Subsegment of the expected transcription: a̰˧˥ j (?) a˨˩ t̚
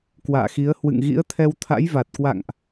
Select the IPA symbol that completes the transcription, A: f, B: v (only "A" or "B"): B